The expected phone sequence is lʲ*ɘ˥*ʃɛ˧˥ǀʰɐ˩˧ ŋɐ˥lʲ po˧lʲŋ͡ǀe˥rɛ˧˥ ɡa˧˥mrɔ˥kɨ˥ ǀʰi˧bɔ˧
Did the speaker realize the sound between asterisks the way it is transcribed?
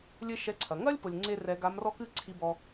yes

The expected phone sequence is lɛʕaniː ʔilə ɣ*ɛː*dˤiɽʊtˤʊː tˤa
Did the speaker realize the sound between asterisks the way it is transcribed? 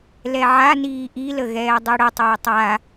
yes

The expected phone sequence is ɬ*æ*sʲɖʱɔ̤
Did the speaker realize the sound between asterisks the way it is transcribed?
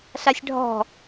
no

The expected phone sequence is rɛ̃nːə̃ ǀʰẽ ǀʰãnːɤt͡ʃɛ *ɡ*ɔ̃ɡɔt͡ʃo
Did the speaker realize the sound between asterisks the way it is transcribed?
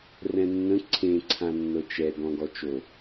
yes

